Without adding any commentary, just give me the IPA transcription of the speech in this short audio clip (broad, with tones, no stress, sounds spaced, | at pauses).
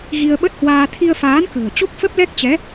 ɣ i˧ ə̯ ɓ ə˦˥ t̚ h w aː˧ t̪ʰ i˧ ə̯ f aː˨˦ n k ə̤ː˨˩ t͡ɕ o˦˥ k̚ f ə˦˥ p̚ l ɛ˦˥ k̚ t͡ɕ ɛ˨˦